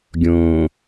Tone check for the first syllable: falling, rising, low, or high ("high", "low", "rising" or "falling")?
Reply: low